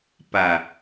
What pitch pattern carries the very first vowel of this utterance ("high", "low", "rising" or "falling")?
low